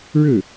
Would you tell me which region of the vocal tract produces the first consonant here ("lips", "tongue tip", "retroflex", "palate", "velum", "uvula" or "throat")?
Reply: retroflex